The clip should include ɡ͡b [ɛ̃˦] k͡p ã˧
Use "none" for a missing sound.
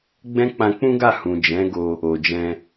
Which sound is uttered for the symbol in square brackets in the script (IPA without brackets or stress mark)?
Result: ɛ̃˦